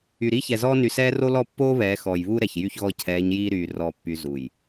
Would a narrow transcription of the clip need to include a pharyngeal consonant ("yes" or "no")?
no